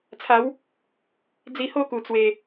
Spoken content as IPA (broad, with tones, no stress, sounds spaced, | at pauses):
t͡sʰ a˨˦ w | d͡z i˧ h o˥˧ k u˨˩ t͡s w e˨˩